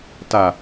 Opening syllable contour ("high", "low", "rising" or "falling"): low